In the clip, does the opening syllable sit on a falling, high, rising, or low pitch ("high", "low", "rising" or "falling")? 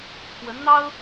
rising